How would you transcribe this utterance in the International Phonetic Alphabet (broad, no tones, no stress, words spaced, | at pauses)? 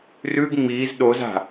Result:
rʉɡ ŋ͡miːz ɗoz a̤